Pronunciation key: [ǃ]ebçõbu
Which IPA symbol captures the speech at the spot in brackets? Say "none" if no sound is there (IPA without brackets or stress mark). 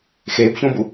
x